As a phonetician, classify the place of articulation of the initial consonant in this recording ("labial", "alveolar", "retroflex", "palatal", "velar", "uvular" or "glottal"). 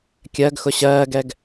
velar